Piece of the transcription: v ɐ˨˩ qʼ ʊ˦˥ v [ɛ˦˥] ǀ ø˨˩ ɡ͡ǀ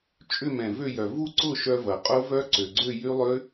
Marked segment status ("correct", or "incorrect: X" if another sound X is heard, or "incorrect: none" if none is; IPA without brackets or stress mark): incorrect: œ˦˥